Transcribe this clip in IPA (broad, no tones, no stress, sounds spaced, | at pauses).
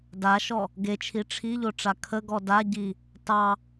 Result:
d a ʃ ɔ | ɡ e t͡ʃʰ i ʈ͡ʂʰ i ʎ o ʈ͡ʂ a kʰ ə ɡ ɔ d a ɟ i | t ɑ